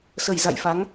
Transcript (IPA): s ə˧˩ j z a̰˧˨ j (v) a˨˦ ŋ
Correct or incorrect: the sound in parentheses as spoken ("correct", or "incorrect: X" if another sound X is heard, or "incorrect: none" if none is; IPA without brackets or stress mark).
incorrect: f